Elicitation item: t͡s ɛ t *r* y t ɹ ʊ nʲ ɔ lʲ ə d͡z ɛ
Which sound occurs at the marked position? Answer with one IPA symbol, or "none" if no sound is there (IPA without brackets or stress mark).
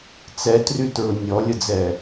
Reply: r